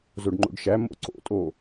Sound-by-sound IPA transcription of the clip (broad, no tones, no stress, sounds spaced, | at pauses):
z o ɖ ŋ͡ǃ o̰ ɖ ʃ æ m o̰ ǀ o̰ tʼ o